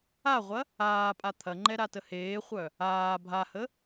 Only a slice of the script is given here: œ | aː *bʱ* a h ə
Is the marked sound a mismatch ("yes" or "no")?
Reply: no